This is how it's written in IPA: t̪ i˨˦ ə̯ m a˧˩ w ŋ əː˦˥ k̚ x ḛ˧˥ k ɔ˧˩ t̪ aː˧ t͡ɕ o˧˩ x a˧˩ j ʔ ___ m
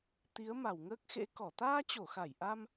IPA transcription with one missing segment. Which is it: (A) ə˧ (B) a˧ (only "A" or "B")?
B